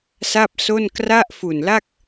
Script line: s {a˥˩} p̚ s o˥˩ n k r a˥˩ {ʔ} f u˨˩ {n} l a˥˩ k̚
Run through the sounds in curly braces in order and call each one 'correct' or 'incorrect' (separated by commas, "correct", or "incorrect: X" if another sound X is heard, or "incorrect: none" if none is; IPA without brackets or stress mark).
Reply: correct, correct, correct